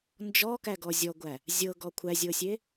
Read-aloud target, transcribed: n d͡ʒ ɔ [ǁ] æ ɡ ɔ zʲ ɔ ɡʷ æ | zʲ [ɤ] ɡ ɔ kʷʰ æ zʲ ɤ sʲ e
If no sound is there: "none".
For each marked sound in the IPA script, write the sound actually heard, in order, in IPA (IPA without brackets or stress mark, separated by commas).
k, ɤ